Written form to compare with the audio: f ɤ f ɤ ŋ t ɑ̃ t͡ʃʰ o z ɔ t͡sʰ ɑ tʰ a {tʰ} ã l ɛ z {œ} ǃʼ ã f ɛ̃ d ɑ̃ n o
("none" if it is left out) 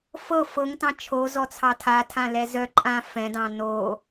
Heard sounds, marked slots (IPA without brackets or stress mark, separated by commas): tʰ, œ